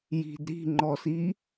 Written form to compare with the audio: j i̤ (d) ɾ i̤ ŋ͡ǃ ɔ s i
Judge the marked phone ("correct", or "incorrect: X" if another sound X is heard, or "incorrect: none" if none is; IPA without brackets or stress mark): correct